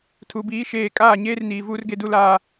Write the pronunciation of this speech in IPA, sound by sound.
tʰ u˨ b iː˨˦ ʃ eː˨ kʼ aː˦˨ ɲ eː˦ r n iː˨ v uː˦ r ɡ e˦ d u˦ l aː˦

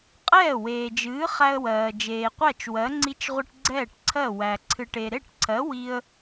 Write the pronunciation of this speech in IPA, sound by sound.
qʼ ɛː˥˩ w eː˨ d͡ʒ ɨː˨˥ χ æ˦ ə̯ w ɜː˨ d͡ʒ eː˨ qʷ æ˥˩ t͡ʃ w ɜ˨˥ ŋ͡ǀ i˦ t͡ʃ ʁʷ ɨ˦ ʈ ɡ͡ǀ ɛː˥˩ ʈ ǀʰ ɜ˥˩ w æ˨ ǀʰ ɨ˨ ʈ e˨ ɾ e˥˩ ʈ ǀʰ ɜ˨˥ w i˦ ə̯

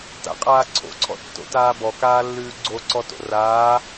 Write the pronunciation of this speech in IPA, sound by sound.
t a̰ qʼ aː ǀʰ o̰ ǀʰ ɔ̰ tː o̰ t aː b ɔ k aː lː ʉː ɡ͡ǀ o ǀ ɔ t o̰ r aː

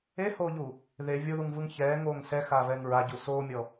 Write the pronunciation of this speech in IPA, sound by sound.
e h oː ʎ u | ð e vʲ o ð u ŋ v ɯ ŋ ç ɛː ŋ oː ŋ s ɛ x aː v ɛː ŋ ɹ a ɟ u s oː mʲ ɔ

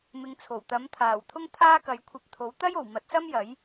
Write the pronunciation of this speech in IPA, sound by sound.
m ɪ˨˧ ŋ t͡sʰ o˨˩ w t̪ ɐ˨˥ m t̪ʰ aː˨˩ w t̪ʰ ʊ˥ ŋ t̪ʰ aː˥ k ɐ˨˧ j kʷʰ ɐ˧ p̚ t̪ʰ o˨˥ w t̪ ɐ˥ j o˨˩ w m ɐ˨˥ t̚ s ɐ˥ m j ɐ˨˥ j

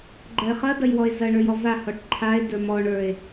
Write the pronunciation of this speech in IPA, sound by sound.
ɡ͡ǃ ɐ e̯ χ ɐ d ɐ j w ɔ e̯ z ɐ ɳ ə˞ j ɔ v a h ɔ ʈ ǃʰ a e̯ d ə˞ m ɔ ɳ ə˞ e̯

